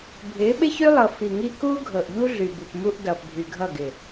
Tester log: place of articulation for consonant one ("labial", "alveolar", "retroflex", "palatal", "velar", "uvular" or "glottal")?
labial